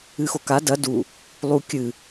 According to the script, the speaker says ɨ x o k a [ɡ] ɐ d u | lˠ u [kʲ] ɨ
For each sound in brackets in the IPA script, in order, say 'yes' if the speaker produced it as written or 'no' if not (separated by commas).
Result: no, yes